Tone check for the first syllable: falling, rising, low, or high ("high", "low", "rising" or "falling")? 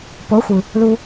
rising